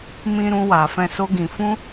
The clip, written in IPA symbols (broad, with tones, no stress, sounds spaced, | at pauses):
m ĩ˧ ɾ ũ˧ w a˨ f ɛ̃˧ s o˦ ɡ ĩ˧ f ũ˦